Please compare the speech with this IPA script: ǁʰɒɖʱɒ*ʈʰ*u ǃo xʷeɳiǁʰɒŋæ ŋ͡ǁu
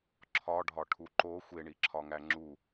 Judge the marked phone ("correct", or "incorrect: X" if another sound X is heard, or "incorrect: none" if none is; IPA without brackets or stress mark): correct